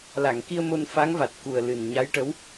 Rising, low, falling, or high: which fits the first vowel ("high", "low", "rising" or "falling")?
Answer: low